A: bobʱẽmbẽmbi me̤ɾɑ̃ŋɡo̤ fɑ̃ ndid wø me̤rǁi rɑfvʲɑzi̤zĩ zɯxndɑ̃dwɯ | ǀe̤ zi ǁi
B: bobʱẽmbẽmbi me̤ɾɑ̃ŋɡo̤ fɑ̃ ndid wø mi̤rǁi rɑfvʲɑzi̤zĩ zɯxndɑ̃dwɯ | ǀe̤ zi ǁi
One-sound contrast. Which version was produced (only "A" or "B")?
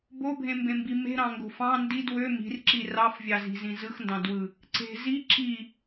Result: B